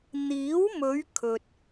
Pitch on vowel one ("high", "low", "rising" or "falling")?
rising